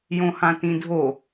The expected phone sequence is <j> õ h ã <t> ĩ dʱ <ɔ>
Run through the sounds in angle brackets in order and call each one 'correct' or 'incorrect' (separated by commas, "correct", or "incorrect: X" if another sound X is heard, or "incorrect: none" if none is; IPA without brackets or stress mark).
correct, correct, incorrect: o